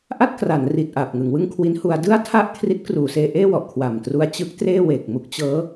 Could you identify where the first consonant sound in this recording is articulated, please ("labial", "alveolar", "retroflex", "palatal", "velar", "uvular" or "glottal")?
glottal